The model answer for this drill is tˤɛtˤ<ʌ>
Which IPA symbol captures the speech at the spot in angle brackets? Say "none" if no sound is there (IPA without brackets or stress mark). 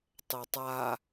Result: a